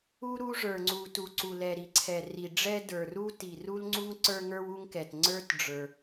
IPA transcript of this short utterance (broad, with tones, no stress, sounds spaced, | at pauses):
u˥ ɾ u˥ ʐ ə˞˩ ŋ͡ǀ u˩ t u˩ ǀ u˩ l ɛ˩ ɾ i˩ ǀʰ ɛ˩ r i˩ ɖ͡ʐ ɛ˥ d ə˞˩ r u˥ t i˩ r u˥ l ŋ͡ǀ u˥ ŋ ǀ ə˞˥ ŋ ə˞˥ w u˥ ŋ k ɛ˩ t ŋ͡ǀ ə˞˥ t ɖ͡ʐ ə˞˩